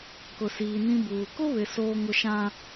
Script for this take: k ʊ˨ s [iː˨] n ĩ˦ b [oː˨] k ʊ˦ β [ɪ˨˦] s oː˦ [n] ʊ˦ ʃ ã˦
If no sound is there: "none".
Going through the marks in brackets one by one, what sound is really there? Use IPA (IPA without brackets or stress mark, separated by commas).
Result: iː˨, uː˨, ɪ˨, ŋ